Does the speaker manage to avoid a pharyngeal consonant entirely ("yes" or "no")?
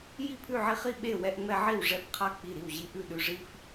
no